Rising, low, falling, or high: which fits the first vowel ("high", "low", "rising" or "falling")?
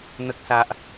high